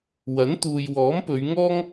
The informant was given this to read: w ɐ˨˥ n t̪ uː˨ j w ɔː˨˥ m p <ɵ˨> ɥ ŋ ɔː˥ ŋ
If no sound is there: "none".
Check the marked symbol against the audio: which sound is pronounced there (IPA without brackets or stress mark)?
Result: ɵ˨˧